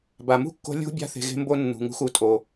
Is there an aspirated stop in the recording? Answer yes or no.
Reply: no